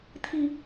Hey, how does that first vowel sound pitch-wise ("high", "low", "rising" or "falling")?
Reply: low